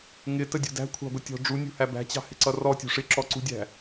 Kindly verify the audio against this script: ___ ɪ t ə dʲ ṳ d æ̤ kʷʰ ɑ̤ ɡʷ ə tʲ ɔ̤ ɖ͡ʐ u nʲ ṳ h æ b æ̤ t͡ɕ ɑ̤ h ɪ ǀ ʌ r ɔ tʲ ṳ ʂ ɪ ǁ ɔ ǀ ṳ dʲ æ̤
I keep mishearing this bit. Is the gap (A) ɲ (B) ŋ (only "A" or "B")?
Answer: B